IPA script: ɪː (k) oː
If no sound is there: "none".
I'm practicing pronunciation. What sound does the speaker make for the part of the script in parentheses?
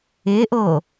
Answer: ʔ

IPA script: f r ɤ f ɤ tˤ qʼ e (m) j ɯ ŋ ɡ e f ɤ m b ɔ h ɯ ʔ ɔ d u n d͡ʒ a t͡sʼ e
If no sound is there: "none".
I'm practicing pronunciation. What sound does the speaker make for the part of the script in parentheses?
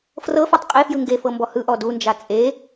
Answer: f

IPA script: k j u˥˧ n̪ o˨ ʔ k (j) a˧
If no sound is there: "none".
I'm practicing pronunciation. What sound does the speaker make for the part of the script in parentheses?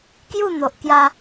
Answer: j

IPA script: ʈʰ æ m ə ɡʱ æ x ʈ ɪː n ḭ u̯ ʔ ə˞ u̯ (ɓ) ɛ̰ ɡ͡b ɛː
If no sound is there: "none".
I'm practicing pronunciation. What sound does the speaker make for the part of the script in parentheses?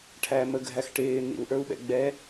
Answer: ɓ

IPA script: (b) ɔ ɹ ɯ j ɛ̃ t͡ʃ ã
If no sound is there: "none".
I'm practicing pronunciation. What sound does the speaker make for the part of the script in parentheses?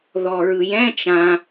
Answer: ð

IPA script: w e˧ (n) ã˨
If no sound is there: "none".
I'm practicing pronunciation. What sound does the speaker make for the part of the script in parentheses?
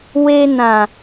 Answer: n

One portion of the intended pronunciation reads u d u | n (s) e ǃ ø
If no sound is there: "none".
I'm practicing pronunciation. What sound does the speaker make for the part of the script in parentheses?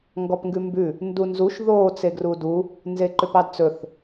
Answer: z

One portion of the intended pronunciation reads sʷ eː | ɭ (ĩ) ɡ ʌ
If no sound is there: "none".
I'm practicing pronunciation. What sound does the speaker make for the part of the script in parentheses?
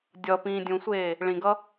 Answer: ĩ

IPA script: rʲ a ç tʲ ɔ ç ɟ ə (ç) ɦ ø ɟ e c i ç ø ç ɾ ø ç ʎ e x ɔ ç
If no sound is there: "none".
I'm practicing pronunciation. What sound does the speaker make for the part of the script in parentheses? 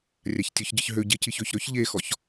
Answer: ç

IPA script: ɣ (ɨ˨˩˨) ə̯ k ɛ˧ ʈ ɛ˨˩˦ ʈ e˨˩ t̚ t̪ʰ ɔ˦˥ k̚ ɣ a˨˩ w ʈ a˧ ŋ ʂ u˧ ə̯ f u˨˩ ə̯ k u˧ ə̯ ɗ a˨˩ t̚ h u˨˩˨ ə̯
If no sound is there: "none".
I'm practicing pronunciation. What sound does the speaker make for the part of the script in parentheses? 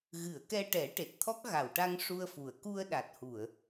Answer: ɨ˨˩˨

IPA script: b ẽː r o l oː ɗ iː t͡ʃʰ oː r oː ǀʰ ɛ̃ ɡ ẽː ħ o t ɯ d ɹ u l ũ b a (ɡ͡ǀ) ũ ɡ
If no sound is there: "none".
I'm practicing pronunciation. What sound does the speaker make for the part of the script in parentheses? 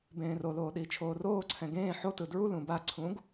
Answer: ǀʰ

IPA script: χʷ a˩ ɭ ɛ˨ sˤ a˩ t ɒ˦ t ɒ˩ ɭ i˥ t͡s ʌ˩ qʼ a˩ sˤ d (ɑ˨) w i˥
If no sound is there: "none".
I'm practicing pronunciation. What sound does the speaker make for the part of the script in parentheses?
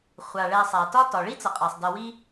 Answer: ʌ˨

